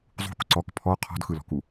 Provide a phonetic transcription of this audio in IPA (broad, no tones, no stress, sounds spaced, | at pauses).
zˤ ṳ k ǀ ɔ k pʰ ɔ qʰ ɔ̤ d x ɯ l ɔ̤ k u